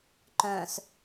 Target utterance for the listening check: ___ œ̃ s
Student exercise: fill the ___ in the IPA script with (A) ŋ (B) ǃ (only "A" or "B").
B